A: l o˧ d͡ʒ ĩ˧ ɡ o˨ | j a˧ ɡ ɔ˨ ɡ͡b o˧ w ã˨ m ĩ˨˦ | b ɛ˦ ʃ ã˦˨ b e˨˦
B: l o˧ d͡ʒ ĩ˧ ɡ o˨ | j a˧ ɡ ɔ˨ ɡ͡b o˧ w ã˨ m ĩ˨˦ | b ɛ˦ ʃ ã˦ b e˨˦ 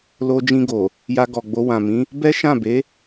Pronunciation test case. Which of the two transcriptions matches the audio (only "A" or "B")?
A